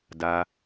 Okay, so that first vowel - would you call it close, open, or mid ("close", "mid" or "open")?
open